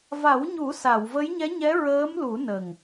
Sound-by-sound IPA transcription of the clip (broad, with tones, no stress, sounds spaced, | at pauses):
v a˨˩˦ w ɲ u˨˩˦ s a˨˩˨ w v ə˧˥ j ɲ ɛ˧˥ ɲ ɛ˧˥ ɹ əː˧˥ m l u˨˩˦ n ə˨˩ ŋ